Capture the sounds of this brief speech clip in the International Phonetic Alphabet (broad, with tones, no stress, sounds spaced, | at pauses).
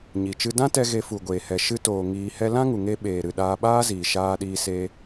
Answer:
ɲ i˨ t͡ʃ ɨ˦ d ã˦ t ɛ˧ ɣ e˧ f u˨ ɡʷ eː˨ h ɛ˨ ʃ ɨ˧ t oː˨ ŋ iː˧ h ɛ˦ l ã˦ ŋ u˨ ŋ e˧ ɓ eː˨ ɾ ɨ˨ ɗ aː˧ ɓ aː˦ z iː˨ ʃ aː˧ ɗ iː˧ s e˧